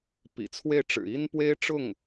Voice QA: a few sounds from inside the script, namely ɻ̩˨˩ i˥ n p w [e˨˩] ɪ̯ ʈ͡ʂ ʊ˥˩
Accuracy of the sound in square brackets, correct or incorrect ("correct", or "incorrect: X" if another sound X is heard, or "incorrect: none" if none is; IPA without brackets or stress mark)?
incorrect: e˥